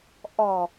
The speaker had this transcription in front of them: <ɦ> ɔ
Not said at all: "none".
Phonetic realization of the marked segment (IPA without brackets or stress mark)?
ʔ